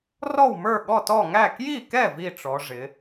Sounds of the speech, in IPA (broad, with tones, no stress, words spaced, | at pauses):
rɔ˥˩wmə˞˥˩ ɠɔ˥˩tɔ˥˩ ŋæ˥˩ kji˥˩kɛ˥˩ vi˥˩ʈ͡ʂɔ˩˧ ʐɪ˩˧